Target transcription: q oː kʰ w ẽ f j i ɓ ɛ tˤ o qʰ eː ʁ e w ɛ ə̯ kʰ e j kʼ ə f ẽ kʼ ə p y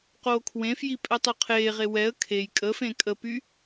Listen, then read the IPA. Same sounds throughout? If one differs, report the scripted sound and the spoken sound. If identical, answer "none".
ɓ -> pʼ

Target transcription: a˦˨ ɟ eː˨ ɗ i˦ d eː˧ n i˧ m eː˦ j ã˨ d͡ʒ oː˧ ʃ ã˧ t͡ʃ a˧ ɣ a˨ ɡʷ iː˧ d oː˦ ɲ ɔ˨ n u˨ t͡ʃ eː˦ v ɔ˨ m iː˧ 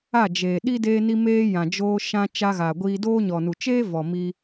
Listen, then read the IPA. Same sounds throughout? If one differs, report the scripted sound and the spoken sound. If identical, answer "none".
ɟ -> d͡ʒ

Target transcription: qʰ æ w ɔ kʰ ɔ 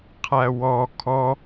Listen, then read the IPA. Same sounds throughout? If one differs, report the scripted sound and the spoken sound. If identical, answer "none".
none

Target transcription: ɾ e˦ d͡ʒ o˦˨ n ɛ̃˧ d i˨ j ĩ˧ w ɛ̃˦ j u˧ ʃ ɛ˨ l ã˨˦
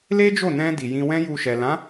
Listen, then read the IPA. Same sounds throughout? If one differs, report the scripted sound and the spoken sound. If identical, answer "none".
ɾ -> l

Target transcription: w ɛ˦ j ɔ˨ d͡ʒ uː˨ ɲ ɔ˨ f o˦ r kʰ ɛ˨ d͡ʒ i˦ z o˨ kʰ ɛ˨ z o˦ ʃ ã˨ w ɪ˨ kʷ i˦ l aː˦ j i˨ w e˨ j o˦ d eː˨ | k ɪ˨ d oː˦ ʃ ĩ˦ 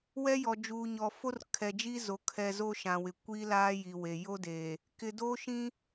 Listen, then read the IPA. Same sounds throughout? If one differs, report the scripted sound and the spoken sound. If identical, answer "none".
none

